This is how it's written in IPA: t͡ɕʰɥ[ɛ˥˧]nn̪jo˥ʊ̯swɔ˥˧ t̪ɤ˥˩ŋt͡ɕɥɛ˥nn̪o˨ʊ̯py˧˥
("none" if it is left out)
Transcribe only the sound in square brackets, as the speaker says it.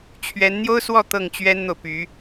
ɛ˧˥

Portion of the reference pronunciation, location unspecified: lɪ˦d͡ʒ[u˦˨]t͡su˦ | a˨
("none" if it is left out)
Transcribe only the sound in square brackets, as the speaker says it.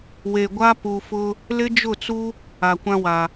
ʊ˦˨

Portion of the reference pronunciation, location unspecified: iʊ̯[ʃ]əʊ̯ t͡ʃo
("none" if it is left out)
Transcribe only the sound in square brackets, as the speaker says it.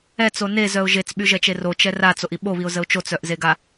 z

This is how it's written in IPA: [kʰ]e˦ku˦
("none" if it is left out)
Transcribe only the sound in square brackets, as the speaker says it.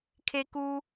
kʰ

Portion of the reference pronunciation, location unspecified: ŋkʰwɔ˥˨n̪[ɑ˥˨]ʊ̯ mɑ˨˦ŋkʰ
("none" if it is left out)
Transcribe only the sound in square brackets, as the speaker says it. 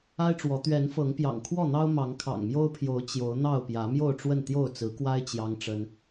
ɑ˦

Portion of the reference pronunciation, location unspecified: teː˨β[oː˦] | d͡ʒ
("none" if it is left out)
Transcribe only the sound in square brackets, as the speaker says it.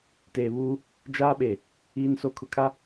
uː˦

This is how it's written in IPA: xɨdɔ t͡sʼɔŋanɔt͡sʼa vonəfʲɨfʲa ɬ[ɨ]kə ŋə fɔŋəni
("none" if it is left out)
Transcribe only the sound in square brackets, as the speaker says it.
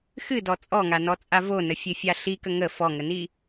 i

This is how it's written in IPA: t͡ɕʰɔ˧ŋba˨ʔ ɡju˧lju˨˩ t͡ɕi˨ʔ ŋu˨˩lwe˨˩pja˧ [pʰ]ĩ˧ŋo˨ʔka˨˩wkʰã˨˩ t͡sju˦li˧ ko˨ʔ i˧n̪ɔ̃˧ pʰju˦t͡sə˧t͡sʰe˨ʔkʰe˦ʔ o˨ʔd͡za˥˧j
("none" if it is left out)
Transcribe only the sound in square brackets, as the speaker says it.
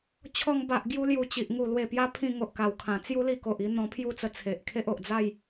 pʰ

